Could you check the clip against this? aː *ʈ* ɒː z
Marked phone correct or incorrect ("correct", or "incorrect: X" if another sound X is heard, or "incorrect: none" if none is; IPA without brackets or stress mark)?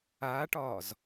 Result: correct